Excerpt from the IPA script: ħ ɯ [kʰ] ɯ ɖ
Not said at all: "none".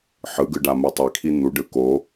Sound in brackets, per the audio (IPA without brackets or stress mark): ɡ